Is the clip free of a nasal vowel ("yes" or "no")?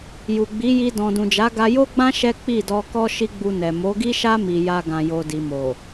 no